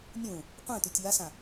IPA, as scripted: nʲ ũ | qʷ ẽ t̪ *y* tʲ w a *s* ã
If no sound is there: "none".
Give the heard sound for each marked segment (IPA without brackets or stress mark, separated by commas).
y, s